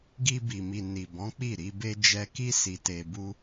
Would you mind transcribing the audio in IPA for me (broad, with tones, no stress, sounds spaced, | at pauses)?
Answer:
ɡ i˧ b i˨ m i˨ n i˨ b ɔ̃˨˦ k͡p i˦˨ ɾ i˧ b e˦ d͡ʒ ɛ˧ k i˦ s i˧ t e˧ b u˦